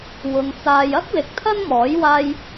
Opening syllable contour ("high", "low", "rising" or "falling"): low